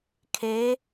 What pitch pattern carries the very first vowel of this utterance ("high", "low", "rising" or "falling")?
rising